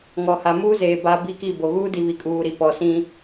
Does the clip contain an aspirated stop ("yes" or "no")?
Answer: no